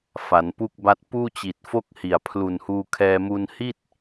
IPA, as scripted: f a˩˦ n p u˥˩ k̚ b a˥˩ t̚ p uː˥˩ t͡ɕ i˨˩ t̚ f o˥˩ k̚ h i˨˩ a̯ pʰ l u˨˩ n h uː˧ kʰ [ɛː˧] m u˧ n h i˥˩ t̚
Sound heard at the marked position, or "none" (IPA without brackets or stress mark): ɛː˧